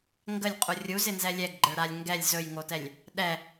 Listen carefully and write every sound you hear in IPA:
ŋ ɡ ə lʲ qʼ u rʲ u z ɪ n z ɛ lʲ ɛ ɡ ɡ͡ǃ ə ɭ ɾ a lʲ ŋ ɡ ɛ lʲ z ɵ j ŋ o t ɛ lʲ | ɗ ɛ

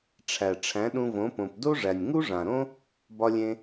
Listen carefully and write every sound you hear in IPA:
ʈ͡ʂʰ æ˨ ʈ͡ʂʰ æ̃˨˦ ɗ ũ˧ v õ˨˦ p õ˨ p d o˦ ʐ æ˨ nʲ ŋ u˦ ʐ ã˨ ɾ õ˦ | b ɒ˧ lʲ ẽ˧

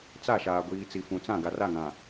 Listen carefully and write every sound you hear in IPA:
t͡s a˦˨ ʃ aː˨ ɡʷ iː˨ t͡s i˨ f ũ˨ t͡s ã˦˨ ɡ a˨ r a˦˨ ŋ ã˨

